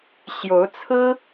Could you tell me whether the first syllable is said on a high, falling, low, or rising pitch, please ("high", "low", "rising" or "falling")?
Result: rising